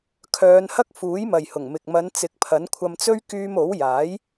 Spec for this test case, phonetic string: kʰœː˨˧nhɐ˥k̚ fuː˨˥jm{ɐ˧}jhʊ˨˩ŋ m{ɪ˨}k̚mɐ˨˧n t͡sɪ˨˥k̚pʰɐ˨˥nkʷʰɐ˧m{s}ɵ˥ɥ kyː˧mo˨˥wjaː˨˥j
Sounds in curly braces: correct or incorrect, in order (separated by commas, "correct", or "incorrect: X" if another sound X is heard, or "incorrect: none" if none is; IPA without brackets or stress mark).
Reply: incorrect: ɐ˨, correct, incorrect: t͡s